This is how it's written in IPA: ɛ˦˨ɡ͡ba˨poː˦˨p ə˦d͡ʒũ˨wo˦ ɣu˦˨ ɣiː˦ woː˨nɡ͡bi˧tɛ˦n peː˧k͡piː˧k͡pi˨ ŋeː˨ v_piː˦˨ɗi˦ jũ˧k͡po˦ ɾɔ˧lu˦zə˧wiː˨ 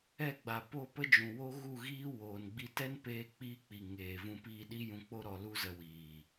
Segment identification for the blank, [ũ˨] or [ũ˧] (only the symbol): ũ˧